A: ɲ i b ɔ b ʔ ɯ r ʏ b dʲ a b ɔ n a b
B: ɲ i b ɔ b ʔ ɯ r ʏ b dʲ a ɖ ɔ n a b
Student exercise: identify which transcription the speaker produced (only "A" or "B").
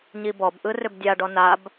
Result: B